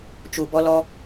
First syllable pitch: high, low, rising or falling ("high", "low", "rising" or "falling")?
low